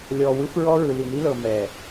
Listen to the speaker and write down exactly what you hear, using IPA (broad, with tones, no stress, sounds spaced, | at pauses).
lʲ ɔ˨ w ɯ˦ f ɹ ɔ˦ ɹ ɯ˨ l i˨ n i˦ l ɤ˨ m ɛ˨